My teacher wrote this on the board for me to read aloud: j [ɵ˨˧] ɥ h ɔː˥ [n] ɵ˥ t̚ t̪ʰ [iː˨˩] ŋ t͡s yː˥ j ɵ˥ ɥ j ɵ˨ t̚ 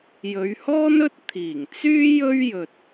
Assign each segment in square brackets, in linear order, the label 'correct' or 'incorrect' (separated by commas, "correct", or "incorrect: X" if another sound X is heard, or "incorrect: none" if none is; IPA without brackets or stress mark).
correct, correct, correct